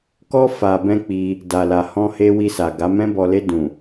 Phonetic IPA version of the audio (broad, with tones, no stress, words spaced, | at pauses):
kɔ˦ fa˧bɛ̃˦k͡pi˧ | da˨la˨hɔ̃˧he˧ wi˧sa˨ɡa˨˦ mɛ̃˧bɔ˨le˧ dũ˨